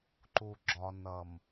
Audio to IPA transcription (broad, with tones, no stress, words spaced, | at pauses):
ǃu˨ɡ͡ǁɒ˨ nʌ˨m